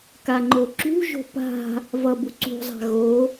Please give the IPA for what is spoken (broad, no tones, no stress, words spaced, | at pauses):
kaŋ͡ǃoǁṳʒo̤ pa̤ | vʌbu ǀṳzˤa̤ ɣo